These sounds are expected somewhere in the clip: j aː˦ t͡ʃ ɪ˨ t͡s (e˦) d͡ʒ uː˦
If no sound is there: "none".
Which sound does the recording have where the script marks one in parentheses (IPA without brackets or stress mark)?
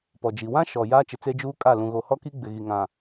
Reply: e˦